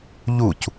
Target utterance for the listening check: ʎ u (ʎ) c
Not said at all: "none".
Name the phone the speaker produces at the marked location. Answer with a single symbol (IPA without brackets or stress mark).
none